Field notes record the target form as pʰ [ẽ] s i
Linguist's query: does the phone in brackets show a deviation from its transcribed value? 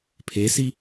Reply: yes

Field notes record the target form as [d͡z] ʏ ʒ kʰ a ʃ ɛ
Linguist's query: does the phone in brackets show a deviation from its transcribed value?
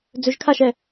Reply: no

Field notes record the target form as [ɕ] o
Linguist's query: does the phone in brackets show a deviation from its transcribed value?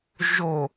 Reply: yes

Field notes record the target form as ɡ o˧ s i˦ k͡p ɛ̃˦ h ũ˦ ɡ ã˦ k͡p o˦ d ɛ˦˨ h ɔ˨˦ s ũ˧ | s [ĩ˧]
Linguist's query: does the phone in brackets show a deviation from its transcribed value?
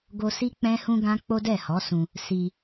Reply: yes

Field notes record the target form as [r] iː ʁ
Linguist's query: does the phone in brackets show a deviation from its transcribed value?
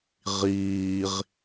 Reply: yes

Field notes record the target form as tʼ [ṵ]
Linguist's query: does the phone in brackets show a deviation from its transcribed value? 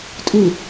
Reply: yes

